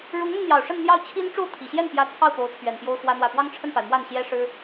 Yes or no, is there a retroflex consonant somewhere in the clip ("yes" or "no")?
yes